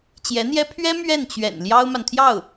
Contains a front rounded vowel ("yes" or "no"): no